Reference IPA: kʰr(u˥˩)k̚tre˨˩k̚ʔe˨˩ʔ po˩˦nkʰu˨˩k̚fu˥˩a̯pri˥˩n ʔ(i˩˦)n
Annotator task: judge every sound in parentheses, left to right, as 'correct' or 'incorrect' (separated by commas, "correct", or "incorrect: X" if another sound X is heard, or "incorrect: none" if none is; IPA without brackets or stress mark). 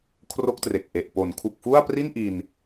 incorrect: o˥˩, incorrect: i˧